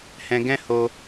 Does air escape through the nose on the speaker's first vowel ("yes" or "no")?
yes